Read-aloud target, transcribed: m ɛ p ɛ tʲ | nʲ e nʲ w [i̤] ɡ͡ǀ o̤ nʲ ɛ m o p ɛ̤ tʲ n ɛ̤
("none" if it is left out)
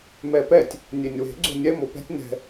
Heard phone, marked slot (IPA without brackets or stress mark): e̤